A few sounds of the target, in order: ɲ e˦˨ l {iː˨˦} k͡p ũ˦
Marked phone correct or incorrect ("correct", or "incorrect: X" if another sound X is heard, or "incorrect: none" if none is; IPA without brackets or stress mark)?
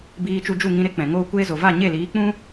correct